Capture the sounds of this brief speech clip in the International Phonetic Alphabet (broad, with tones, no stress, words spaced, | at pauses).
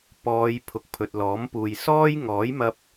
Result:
pɔː˨˧j pʰʊ˨k̚pʰɵ˨t̚lɔː˨˥mpuː˨j sɔː˥jŋɔː˨˥jmɐ˧p̚